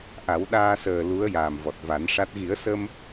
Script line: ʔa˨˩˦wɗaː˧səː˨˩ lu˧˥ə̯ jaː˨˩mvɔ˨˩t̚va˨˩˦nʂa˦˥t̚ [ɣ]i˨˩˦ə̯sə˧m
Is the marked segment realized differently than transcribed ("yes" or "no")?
no